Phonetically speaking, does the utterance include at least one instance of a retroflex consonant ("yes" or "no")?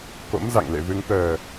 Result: no